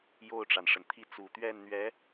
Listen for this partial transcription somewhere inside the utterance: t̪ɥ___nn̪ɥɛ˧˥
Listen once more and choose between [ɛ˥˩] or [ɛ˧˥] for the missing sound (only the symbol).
ɛ˥˩